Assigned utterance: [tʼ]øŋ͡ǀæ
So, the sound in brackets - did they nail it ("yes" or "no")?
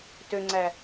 no